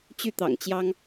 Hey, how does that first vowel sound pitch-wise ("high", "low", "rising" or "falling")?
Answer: falling